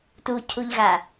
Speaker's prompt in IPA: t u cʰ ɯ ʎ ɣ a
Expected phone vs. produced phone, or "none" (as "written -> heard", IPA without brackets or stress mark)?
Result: ɯ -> u